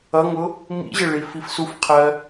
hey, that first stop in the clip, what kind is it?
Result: aspirated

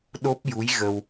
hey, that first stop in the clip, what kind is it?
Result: implosive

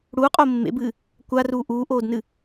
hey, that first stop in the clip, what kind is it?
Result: ejective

